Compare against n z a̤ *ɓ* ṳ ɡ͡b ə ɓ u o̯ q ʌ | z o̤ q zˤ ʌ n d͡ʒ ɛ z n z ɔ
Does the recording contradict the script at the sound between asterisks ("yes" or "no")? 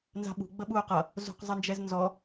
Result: no